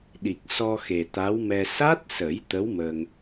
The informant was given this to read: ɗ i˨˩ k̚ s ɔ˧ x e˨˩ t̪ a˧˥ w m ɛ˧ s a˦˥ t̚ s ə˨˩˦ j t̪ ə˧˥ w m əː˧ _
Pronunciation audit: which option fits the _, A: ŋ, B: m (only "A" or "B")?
A